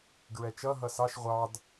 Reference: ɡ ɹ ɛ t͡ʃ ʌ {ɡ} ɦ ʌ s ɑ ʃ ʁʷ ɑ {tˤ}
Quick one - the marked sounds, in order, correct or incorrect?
incorrect: none, incorrect: d

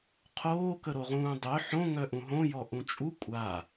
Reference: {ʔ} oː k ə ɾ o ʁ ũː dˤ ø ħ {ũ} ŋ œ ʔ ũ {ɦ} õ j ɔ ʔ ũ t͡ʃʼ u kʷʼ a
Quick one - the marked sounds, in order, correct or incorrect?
incorrect: qʰ, incorrect: õ, correct

